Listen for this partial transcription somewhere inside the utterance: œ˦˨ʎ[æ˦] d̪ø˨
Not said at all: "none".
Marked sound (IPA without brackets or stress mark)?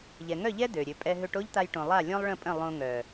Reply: ɛ˦